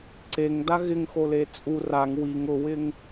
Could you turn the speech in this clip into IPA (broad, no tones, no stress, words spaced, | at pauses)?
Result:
ǀeŋda ɣɪŋxole t͡sʼu raŋ wiŋ ʊwɪŋ